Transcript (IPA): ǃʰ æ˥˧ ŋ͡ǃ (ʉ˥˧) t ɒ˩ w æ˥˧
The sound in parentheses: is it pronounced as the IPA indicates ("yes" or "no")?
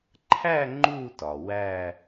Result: no